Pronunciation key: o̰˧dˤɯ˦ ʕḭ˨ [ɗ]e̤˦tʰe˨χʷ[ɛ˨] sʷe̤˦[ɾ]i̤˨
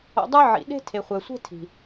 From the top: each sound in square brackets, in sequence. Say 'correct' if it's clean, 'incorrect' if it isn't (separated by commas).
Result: correct, correct, incorrect